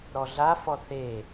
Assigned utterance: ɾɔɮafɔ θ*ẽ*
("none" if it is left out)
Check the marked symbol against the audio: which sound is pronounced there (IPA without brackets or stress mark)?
e